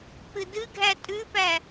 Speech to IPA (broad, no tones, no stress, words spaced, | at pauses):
k͡pɨdɨɡʱæ tʼʉpæ